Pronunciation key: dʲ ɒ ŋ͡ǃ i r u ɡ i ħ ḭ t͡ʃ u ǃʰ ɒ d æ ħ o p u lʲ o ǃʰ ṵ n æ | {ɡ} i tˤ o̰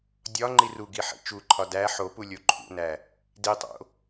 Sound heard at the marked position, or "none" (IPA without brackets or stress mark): d